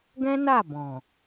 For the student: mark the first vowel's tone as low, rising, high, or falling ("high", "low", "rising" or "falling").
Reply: high